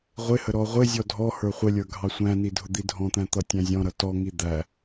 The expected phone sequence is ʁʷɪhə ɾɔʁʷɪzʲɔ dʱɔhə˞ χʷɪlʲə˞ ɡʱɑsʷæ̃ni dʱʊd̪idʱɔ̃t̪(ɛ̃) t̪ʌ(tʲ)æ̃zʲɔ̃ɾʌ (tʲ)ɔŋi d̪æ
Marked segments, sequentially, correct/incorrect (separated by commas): incorrect, correct, incorrect